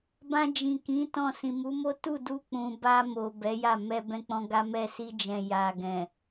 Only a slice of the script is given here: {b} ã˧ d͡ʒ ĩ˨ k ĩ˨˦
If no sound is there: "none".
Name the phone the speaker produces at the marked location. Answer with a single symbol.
b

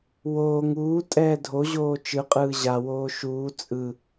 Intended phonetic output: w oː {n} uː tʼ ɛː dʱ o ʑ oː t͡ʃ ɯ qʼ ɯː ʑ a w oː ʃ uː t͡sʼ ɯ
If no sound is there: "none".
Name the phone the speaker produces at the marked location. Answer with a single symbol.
ŋ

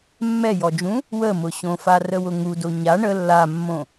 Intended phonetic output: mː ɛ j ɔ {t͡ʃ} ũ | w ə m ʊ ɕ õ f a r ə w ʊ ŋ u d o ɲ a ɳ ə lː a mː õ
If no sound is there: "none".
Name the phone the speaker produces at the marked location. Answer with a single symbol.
d͡ʒ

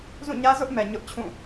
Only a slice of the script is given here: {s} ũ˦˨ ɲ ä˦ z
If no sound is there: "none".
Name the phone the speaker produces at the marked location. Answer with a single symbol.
z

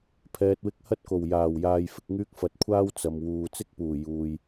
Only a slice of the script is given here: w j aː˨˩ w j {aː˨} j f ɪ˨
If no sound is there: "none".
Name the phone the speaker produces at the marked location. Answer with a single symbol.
aː˨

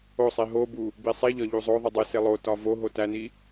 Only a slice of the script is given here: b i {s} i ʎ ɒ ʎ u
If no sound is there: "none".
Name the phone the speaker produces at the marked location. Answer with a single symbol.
sˤ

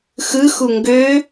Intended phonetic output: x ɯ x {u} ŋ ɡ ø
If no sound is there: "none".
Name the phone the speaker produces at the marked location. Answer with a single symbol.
u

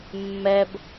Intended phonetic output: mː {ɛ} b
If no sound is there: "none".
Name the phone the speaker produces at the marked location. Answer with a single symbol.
ɛ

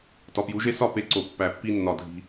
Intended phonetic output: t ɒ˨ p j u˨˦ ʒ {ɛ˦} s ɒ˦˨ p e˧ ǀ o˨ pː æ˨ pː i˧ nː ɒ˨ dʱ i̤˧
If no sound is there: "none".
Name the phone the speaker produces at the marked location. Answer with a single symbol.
e˦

